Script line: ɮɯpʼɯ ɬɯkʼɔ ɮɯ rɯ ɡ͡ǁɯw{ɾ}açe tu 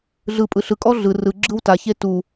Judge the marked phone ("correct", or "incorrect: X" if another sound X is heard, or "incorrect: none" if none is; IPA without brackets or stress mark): incorrect: t